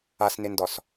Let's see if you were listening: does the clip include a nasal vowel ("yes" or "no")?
no